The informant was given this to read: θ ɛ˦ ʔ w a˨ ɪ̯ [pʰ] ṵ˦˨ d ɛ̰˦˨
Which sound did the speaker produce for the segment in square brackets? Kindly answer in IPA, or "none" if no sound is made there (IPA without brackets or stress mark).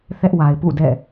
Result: p